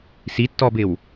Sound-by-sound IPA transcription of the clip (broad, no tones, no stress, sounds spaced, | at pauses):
s i tː ɔ b ɪ w